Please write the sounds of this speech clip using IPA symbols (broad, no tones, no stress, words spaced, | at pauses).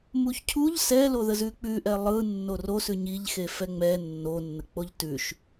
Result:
muçcʰuʎ sɛloðə zʉk͡pʉʔɛ lˠɯ nːorosʉ ɲiʎxe fɛŋ͡mɛ nːonːək͡poʎ tʉʃ